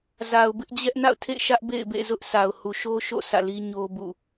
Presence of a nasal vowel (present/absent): absent